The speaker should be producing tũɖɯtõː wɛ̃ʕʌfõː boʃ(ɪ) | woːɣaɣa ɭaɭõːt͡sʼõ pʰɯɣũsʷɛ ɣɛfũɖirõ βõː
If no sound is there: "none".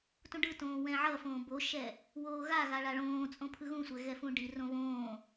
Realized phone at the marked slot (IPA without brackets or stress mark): ɛ